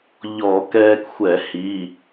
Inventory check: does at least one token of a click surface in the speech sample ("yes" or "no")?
no